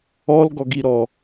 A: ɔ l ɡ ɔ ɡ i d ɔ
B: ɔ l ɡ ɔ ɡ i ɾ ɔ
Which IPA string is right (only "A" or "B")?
B